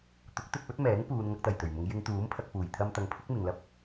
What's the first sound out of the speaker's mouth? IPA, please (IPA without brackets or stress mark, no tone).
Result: t̪